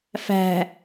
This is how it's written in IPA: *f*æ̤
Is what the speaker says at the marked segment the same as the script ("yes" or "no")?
yes